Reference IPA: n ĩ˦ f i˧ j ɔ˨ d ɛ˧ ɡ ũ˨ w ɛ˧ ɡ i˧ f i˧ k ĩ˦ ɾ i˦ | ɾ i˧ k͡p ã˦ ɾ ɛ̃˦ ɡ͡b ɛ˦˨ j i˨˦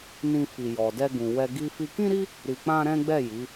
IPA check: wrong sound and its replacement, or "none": none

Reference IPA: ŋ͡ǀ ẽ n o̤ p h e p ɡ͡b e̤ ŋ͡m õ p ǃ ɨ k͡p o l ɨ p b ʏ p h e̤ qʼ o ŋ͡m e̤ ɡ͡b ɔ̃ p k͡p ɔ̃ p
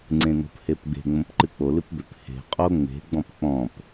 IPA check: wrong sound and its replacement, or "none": none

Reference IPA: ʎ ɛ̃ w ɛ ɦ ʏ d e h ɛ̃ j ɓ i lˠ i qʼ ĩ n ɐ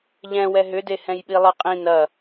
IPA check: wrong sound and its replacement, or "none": none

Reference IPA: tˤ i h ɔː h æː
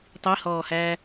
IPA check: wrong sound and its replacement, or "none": none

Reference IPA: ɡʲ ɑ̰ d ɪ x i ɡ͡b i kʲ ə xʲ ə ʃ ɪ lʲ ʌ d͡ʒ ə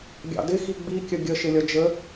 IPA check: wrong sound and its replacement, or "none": xʲ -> ɡʲ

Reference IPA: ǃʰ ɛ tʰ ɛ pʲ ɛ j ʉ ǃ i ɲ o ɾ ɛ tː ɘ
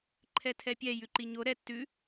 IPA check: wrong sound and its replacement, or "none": ɘ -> ʉ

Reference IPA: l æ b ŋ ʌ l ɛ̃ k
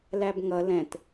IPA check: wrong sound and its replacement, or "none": k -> t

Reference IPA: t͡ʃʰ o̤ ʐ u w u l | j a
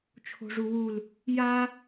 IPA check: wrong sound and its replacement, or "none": none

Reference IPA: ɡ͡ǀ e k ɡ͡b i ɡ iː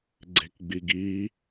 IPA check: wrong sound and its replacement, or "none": none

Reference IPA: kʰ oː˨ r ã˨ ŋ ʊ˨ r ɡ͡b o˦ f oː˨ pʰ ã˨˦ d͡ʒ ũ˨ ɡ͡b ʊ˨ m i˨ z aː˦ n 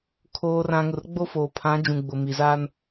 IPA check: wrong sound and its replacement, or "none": none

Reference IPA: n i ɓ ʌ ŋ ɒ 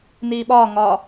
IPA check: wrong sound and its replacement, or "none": ʌ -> ɒ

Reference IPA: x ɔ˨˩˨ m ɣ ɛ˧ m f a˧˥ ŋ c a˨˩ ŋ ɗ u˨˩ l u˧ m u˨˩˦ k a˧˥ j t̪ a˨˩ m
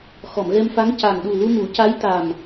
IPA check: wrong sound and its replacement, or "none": k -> c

